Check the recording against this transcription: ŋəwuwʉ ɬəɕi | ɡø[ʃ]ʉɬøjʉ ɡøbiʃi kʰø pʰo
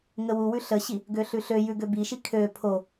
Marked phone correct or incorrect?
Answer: incorrect